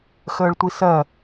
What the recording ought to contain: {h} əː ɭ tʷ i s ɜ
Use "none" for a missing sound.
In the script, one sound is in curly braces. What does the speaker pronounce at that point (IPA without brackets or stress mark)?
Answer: x